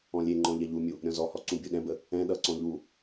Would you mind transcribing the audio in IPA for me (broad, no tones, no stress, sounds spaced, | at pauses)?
ɔ̃ lʲ e ŋ͡ǃ ɔ̃ ʎ ɛ ʎ u mʲ u | ɾʲ ɔ̃ z ɔ h ɔ ǀ ũ bʲ u ɗ ɛ̃ b ə | ɛ̃ ɗ ʌ ǀ ɔ̃ ʎ u